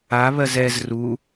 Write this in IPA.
a β ɜ z ɛ z r u

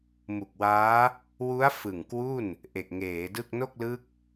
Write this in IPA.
m u˨˩ k̚ w aː˦˥ | w u˦˥ a̯ f ɯ˨˩ ŋ k w u˥˩ n | ʔ e˨˩ k̚ ŋ eː˩˦ d ɯ˥˩ k̚ n o˥˩ k̚ l ɯ˦˥ k̚

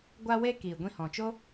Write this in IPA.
ɡʷ a˧ w e˧ k iː˨ ɡʷ ĩ˧ h ɔ̃˨ t͡ʃ o˦

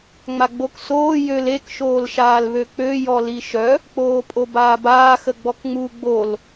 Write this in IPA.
ŋ͡m a ɡ͡b o k s oː j ø l e k ʃ oː l ʃ aː l β ø k͡p ø j ɔ l i ʃ œ | k͡p oː pʼ o b aː b aː x ə ɡ͡b ɔ k ŋ͡m u ɡ͡b o l

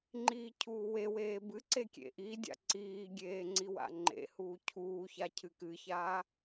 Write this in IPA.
ŋ͡ǃ iː cʰ uː w e w eː b ɨ ǀ e kʲ ḛ ʔ i dʲ a̰ ǀ iː ɡʲ eː ŋ͡ǀ i w a̰ ŋ͡ǃ ḛ h uː cʰ uː ç a cʰ ɨ k ɨ ç aː

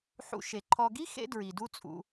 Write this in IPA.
ħ ṵ˧ ʃ e˨ ǃʰ ɔ˨ ɡ i˦ x ḛ˦ d ɹ i˨ d u˦ t͡sʼ ṵ˧

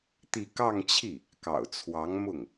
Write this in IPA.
t̪ i˥˧ k ɑ˥˧ ŋ t͡ɕʰ i˥˩ | k ɑ̰˨˩ ʊ̯ t͡sʰ w ɑ˧˥ ŋ m ʊ˥˩ ŋ

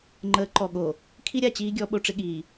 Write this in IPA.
ŋ͡ǃ əː˨˦ ǃ ɔ˨ ɠ o˨ | kʰ i˦ ɾʲ a˨ t͡ɕ iː˦ ɡʲ ɔ˨˦ ɓ o˨ ʈ͡ʂ ɪ˦ ɠ iː˨

